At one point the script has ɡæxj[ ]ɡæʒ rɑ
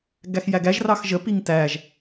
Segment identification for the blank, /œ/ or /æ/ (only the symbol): æ